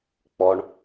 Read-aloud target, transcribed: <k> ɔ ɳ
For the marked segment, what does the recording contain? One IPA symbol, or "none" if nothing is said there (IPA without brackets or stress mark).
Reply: k͡p